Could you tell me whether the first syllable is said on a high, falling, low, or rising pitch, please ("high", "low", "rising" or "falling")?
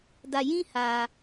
low